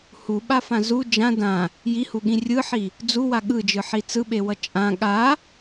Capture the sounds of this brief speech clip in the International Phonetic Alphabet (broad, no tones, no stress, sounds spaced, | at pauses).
h u ɓ a f ã z u d͡ʒ ã d ã | j i h u ɠ ĩ rʲ ɯ ħ i | d͡z u w a ɠ ɯ d͡ʒ ɯ ħ i t͡s ɯ ɓ e w ʌ t͡ʃʼ ã ɠ a